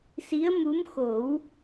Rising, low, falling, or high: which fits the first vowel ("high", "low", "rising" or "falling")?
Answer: rising